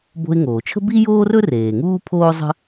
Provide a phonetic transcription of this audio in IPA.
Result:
b o̤˧ ɪ̯ ŋ oː˩ t͡ʃʰ ə̤˥ b i˥ j oː˥ r ɵ˥ r eː˩ ŋ uː˥ pʰ oː˥ zˤ ə̤˥

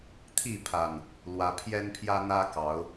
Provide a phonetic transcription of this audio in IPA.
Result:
t̪ʰ i˥˨ pʰ a˨˩ n | l w ä˨˦ pʰ j ɛ˦ n pʰ j ä˦ n̪ ä˦ k ɑ˨˦ ʊ̯

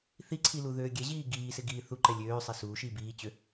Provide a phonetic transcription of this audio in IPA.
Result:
θ i ǀʰ i l u ð øː ɡʲ ɛ ʑ iː ɡ iː s ɪ ɡ iː θ u ǃ ɛ lʲ øː sˤ ɛ s uː ʃ iː b iː t͡ɕ ø

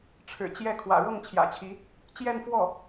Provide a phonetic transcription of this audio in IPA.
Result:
ʈ͡ʂʰ ɻ̩˨˩ t͡ɕ j ɛ˥˩ kʰ w ä̰˨˩ ɻ ɤ˥˩ ŋ t͡ɕʰ j ä̰˨˩ t͡ɕʰ i˧˥ | t͡ɕ j ɛ˥˧ n f w ɔ˥˩

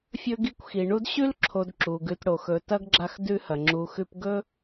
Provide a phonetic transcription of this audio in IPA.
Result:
fʲ ɵ˦ ɡ i˦ kʷ x i˩ ɳ u˥ d ɕ ʉ˥ l ǁʰ o˨ d ǁ u˩ ɡ ʉ˨ t ɽ o˩ x ɵ˨ t ɐ˥ ɡ ɡ͡ǁ a˦ x d ʉ˦ h ɐ˩ ŋ͡ǁ u˨ x ʉ˦ p ɡ ɵ˥

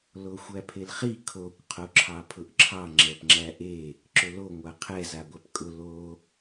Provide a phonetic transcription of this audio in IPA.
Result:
l o xʷ æ pʰ e l χ i kʰ o kʷ qʰ o ǁʰ ɑ pʰ ʊ ʔ ǁʰ ɑ ŋ͡ǁ ɛ p ŋ͡ǁ æ ʔ e | ǁ ʊ l o ŋʷ a qʰ ɛ z a ɡʷ æ p kʼ ʊ l o

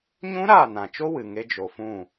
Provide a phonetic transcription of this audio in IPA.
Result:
ɲ ũ˦ ɾ aː˦˨ n ã˨ t͡ʃ o˦ w ɨ˨ ŋ e˦ d͡ʒ o˧ f ũ˦˨

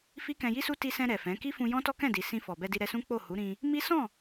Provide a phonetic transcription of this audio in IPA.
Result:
f i˦ k ɛ̃˧ j i˦ s u˦ t i˧ s ɛ̃˧ ɾ ɛ˨ f ɛ̃˨˦ k i˦ f ũ˧ j ɔ̃˦ t ɔ˦ k ɛ̃˦˨ d i˨ s ĩ˧ f ɔ˨ b ɛ˧ d i˧ ɾ ɛ˧ s ũ˦ k͡p o˦˨ h u˨˦ ɾ ĩ˧ | m i˦ s ɔ̃˦˨

